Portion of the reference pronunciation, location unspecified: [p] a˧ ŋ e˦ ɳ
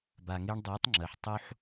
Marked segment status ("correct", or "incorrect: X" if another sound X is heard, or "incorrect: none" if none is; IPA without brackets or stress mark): incorrect: b